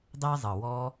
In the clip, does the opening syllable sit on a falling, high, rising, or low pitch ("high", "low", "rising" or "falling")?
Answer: high